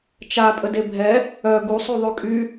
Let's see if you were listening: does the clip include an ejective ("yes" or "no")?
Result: yes